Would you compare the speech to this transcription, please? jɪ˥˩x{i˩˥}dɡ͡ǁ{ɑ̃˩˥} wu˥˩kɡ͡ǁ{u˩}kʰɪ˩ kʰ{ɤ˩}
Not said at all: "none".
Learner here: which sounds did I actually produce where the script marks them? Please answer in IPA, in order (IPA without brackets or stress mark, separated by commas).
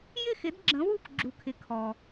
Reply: ɪ˩˥, ə̃˩˥, u˩, ɔ˩